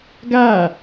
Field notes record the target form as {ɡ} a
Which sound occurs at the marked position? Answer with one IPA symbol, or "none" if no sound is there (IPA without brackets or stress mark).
ɡ